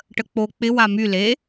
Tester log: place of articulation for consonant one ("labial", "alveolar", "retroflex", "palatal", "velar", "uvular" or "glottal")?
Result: retroflex